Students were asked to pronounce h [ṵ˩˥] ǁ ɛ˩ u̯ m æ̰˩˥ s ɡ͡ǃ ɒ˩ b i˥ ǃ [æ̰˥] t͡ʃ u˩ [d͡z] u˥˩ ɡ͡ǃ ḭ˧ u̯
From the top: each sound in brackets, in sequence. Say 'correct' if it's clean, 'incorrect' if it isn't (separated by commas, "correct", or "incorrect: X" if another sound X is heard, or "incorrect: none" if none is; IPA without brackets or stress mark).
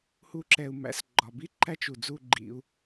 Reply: incorrect: u˩˥, incorrect: æ˥, correct